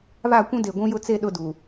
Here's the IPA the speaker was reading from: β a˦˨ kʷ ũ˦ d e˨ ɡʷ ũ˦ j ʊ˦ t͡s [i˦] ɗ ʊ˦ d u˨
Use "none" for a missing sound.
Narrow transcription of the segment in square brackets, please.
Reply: e˦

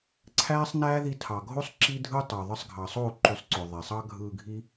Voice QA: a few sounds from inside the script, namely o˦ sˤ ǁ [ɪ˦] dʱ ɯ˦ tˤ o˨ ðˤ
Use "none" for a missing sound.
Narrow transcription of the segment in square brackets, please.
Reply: i˦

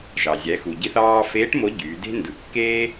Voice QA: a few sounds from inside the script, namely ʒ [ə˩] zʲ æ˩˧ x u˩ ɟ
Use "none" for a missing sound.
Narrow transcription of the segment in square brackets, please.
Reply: ɑ˩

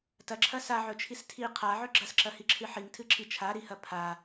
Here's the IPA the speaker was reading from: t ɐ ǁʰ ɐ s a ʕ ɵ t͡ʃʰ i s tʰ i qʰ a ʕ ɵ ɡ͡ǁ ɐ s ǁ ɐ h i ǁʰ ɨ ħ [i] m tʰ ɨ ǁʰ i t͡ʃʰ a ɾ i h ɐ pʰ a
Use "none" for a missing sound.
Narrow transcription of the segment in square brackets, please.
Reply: i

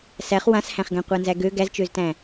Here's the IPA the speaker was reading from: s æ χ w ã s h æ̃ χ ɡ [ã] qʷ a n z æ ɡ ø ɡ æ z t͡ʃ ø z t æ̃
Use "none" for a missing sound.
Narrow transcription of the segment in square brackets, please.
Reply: æ̃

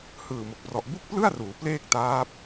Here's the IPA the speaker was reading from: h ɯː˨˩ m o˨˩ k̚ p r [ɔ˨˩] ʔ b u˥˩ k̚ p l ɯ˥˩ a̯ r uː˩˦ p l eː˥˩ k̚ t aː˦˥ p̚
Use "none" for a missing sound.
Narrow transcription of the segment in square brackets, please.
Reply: ɔ˨˩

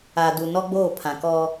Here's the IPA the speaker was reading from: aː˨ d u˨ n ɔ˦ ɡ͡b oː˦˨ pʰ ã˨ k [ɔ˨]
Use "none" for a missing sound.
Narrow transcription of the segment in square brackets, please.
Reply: ɔ˦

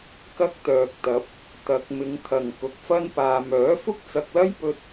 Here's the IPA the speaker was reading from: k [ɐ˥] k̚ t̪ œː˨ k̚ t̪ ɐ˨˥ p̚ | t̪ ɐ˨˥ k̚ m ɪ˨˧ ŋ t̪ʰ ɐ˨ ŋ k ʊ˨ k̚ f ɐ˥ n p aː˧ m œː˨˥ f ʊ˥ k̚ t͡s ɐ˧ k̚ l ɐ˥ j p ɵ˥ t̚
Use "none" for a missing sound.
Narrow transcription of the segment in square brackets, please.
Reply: ɐ˥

